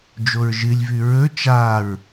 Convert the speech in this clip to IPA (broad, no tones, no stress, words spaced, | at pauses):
d͡ʒoɹʒɨlʲvʉ ɹɵ t͡ʃaɹ